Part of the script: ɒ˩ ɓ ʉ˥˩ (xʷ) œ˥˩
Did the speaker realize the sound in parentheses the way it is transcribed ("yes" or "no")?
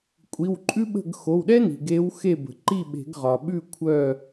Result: no